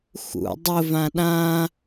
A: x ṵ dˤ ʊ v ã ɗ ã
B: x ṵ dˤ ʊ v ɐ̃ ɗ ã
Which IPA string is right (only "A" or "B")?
A